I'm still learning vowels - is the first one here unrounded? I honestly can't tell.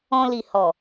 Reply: no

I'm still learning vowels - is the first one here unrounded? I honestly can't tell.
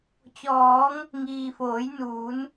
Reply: no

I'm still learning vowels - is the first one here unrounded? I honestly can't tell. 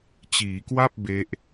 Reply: yes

